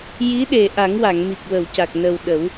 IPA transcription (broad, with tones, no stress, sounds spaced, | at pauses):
j i˧˥ ɗ e˨˩ ʔ a˨˩˦ ŋ w a˨˩˨ ŋ m i˨˩ k̚ w ə˨˩˨ w c a˨˩ k̚ n ə˨˩ w ɗ ə˨˩˦ w